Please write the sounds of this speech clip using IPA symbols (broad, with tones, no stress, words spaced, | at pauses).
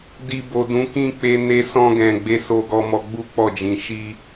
di˨bo˨ dũ˨˦kĩ˦k͡pe˧ ne˧sɔ̃˧ɡɛ̃˨ ɡ͡be˧so˧ɡɔ˧ mɔ˧ɡ͡bu˦k͡pɔ˦˨ d͡ʒĩ˧ ʃi˦